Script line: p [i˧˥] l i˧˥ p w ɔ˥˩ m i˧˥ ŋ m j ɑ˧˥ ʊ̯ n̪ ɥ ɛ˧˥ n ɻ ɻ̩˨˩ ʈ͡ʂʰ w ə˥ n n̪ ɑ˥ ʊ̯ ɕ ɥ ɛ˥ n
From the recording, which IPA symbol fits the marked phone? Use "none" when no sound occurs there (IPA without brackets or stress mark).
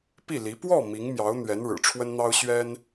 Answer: i˥˩